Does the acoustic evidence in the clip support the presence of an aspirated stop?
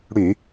no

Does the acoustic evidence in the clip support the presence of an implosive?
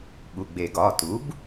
yes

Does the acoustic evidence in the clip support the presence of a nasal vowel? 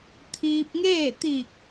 no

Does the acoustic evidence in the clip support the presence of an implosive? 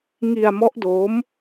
no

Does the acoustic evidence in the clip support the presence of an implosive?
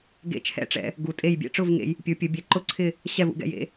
no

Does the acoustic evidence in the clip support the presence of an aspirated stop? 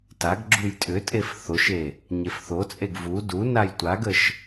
no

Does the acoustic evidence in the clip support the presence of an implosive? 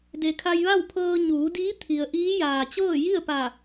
no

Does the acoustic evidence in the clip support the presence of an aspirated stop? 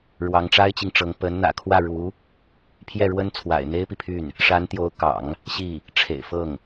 yes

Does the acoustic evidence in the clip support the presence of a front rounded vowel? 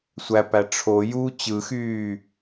yes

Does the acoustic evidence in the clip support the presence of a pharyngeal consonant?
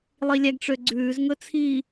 no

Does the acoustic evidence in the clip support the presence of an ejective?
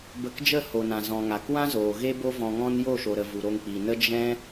no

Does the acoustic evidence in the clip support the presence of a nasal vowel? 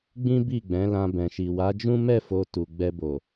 yes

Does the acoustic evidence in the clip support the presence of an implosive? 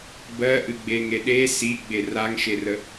yes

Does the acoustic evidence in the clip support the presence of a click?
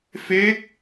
no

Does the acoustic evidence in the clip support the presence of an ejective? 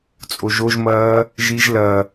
yes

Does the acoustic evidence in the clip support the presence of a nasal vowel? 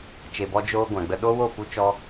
yes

